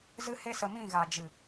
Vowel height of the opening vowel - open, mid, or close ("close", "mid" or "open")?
close